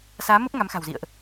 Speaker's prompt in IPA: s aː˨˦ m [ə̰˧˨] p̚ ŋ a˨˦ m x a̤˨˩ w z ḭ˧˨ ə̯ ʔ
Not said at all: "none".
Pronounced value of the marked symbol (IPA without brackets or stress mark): ə˦˥